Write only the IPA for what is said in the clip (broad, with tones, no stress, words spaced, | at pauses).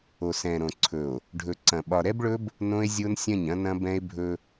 o˨sɛ̃˨ɾõ˨ǀʰɵ˨o̯ | ɖʱɵ˨ǀɐ̃˨ ɓɒ˨ɾɛ˦bɭɵ˦b | nõ˦e̯zʲo˦nsʲɐ̃˦˨ɲ ɐ̃˦nɐ̃˦bɛ̃˦e̯bʱɵ˦